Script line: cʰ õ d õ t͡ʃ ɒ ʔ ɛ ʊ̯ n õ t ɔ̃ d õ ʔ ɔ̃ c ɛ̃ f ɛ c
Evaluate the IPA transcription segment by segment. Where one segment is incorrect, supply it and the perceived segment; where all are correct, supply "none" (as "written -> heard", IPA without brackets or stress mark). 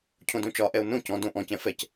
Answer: t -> c